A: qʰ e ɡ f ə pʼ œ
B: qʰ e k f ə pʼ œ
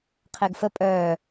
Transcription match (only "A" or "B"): A